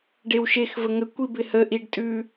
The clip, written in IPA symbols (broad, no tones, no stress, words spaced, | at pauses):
ɖewʃexvə ŋəkʷi bɪhəʔiɖ tʼʉ